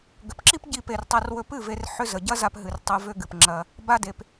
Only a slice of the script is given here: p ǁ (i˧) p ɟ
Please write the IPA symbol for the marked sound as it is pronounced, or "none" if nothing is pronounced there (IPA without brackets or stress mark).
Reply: i˦